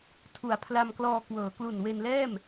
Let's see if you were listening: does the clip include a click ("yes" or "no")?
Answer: no